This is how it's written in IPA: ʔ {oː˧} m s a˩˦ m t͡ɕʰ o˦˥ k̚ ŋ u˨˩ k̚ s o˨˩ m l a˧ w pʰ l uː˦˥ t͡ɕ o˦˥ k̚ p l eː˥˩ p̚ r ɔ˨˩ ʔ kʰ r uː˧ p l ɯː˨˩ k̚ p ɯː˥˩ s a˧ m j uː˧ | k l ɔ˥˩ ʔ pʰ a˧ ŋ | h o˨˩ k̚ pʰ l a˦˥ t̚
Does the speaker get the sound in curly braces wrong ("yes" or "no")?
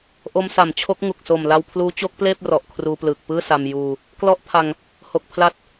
yes